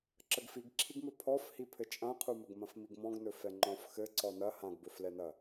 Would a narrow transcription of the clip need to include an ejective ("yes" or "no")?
yes